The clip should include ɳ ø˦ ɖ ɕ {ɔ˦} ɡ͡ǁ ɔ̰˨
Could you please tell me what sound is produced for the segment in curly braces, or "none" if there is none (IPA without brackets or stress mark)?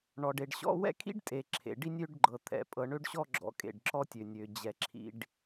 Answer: ɔ˦